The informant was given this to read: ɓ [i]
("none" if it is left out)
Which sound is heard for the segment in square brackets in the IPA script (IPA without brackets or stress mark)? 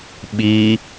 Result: i